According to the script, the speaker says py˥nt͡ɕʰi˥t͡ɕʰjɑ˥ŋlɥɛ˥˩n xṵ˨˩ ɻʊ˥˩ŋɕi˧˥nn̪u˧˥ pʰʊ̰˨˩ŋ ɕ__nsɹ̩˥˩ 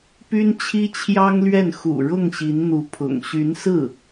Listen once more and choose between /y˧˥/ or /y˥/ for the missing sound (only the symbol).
y˧˥